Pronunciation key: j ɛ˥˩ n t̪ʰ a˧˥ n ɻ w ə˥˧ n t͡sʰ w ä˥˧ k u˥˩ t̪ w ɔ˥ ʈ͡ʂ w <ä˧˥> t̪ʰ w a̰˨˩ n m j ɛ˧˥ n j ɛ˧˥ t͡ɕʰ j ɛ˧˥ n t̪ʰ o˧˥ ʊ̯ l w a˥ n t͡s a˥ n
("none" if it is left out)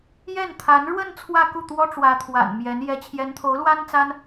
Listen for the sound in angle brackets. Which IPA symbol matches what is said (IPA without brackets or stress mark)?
ä˧˥